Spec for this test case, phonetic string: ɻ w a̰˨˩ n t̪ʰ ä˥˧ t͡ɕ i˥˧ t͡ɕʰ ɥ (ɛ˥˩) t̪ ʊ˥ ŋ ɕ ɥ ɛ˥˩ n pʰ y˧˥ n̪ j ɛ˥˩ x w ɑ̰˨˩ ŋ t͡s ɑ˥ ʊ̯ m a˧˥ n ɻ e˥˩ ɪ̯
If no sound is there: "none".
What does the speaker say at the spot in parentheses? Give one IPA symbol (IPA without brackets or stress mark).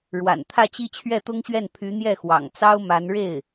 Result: ɛ˥˩